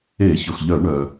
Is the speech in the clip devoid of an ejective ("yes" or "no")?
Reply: yes